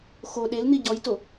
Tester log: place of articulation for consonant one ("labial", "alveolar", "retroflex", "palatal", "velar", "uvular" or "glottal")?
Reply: velar